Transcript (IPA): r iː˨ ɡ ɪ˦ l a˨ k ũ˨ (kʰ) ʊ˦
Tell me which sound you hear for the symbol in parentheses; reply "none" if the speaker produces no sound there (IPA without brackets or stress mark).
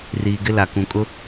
kʼ